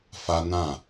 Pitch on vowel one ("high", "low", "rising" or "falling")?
high